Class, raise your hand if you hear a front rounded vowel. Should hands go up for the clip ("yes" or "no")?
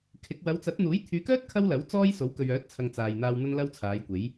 yes